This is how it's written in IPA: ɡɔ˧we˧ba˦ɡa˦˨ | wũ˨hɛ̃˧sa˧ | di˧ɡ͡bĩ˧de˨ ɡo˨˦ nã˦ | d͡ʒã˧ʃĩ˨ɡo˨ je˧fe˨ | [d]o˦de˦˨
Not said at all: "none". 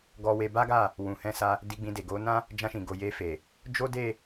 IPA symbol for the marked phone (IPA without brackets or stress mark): d͡ʒ